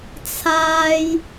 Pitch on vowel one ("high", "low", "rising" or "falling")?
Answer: low